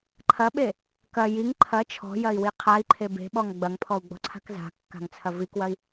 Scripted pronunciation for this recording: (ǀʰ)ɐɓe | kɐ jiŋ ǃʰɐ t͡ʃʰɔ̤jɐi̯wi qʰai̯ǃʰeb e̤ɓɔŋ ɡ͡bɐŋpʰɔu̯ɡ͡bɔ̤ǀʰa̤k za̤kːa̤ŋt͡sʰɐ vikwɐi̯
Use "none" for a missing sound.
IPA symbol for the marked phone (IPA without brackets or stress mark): ǃʰ